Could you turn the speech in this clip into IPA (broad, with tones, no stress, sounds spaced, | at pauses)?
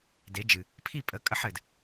d e˨˦ d͡ʒ ɨ˨ | pʰ i˦˨ pʼ ə˨˦ kʼ ə˧ ħ ɘ˨ d